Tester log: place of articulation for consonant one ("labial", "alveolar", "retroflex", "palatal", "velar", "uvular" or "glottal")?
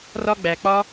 alveolar